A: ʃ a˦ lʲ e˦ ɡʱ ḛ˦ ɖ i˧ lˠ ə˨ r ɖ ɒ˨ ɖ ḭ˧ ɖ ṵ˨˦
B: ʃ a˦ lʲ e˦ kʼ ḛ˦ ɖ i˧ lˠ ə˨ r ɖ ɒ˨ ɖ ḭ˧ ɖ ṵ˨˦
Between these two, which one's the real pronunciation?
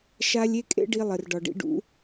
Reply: B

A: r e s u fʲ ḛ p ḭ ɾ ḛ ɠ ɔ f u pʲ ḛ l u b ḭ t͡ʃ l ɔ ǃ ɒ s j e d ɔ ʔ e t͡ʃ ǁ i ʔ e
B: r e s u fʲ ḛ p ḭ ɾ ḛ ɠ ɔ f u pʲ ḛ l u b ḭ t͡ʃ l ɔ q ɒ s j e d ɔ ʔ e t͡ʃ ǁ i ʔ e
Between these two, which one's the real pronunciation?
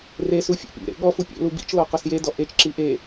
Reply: B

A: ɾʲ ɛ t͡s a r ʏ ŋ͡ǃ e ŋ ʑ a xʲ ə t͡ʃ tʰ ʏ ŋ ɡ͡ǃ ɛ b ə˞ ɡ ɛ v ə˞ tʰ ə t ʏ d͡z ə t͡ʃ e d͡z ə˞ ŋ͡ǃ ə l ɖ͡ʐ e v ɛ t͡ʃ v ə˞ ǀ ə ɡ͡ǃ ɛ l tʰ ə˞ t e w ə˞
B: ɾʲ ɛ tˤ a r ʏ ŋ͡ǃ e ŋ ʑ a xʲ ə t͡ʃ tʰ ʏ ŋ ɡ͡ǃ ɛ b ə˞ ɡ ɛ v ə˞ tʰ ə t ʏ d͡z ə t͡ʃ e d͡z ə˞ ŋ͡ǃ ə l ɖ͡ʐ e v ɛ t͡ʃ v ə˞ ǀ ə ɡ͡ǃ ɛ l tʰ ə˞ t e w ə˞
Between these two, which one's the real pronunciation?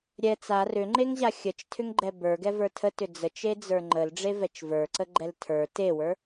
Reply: A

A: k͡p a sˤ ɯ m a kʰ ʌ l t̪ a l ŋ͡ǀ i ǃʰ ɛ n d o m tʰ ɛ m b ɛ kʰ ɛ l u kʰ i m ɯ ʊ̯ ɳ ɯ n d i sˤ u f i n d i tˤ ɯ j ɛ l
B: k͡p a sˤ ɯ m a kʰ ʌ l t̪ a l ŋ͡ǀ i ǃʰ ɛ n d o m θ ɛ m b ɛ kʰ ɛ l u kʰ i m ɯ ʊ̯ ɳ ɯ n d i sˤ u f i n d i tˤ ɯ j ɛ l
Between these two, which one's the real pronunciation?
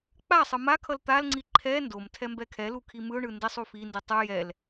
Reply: A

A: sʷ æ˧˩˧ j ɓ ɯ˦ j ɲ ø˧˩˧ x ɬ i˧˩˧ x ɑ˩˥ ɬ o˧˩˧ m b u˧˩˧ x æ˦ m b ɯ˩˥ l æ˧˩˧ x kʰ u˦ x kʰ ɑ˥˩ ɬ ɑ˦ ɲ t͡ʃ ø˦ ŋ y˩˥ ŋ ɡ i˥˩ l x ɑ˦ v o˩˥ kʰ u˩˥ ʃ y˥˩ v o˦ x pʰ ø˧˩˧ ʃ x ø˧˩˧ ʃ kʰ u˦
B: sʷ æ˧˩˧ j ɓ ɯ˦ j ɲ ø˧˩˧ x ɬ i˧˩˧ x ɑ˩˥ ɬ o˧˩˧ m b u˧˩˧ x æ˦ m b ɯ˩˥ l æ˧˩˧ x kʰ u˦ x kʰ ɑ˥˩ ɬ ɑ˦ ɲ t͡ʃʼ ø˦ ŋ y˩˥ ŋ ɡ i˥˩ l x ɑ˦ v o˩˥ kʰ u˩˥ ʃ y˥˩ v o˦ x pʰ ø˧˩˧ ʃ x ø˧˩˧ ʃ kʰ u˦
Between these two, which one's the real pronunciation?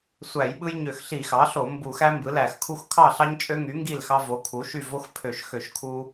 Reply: B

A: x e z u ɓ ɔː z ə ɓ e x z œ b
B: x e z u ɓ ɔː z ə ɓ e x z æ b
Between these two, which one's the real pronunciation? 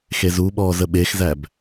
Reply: B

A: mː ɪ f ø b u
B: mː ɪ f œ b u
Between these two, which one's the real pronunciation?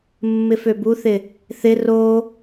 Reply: A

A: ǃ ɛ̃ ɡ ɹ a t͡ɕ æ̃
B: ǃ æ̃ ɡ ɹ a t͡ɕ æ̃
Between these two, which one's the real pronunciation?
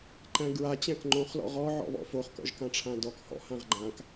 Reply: B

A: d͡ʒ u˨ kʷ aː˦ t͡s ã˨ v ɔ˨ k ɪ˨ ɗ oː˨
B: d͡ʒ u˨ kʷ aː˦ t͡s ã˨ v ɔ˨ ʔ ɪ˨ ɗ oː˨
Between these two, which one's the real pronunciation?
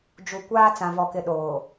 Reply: A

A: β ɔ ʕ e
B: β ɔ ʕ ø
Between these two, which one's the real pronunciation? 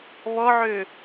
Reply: B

